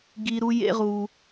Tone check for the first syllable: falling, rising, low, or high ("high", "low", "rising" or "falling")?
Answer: high